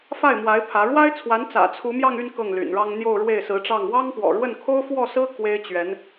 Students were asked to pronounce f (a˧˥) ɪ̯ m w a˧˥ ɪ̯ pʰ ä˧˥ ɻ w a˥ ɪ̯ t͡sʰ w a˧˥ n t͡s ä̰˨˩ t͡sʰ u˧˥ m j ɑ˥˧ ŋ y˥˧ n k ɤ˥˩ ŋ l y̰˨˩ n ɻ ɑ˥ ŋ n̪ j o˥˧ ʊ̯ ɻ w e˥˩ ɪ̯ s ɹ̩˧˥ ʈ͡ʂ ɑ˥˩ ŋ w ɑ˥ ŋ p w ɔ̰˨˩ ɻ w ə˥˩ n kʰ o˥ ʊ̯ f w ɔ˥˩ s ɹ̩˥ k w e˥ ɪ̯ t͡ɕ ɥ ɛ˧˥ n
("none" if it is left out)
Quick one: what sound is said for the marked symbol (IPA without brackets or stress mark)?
a˥˩